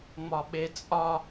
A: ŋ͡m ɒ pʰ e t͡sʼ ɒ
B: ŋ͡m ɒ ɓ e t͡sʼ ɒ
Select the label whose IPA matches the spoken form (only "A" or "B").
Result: B